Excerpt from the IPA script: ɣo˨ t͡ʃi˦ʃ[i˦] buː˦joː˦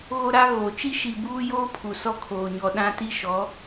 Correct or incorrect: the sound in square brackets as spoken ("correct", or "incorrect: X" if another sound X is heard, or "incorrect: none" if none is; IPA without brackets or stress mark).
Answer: incorrect: i˨